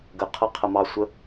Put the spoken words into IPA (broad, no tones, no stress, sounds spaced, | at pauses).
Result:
ɡ ə qʰ ʌ qʰ ə m ɑ sʷ ə